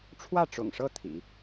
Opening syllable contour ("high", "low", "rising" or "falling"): falling